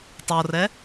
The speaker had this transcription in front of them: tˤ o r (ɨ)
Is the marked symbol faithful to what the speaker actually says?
no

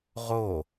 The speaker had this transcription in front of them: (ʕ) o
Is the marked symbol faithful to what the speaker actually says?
no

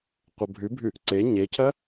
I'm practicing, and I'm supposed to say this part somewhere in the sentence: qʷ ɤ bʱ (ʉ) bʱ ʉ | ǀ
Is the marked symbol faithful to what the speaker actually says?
yes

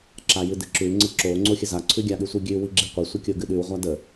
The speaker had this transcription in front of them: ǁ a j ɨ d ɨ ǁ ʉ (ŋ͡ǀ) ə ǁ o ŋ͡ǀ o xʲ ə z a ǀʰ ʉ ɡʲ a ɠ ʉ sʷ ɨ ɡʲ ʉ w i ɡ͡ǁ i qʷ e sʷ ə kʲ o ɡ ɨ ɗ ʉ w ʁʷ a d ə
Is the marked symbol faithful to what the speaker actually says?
yes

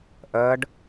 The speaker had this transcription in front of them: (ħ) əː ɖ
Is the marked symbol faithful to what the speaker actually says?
no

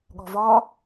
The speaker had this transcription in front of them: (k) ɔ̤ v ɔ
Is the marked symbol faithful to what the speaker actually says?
no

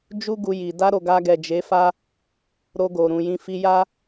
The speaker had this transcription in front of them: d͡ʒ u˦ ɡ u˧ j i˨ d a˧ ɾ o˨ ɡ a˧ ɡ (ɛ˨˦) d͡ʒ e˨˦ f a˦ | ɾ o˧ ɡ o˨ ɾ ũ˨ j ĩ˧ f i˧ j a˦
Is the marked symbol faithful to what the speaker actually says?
no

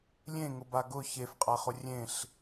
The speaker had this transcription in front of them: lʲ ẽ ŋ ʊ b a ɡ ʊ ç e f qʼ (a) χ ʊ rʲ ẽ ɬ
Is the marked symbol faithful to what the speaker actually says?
yes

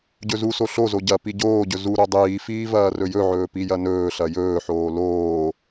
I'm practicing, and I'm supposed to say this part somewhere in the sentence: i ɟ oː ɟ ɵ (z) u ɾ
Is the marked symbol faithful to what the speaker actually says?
yes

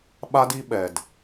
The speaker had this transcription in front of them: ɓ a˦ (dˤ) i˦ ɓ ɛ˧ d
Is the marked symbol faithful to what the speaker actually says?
no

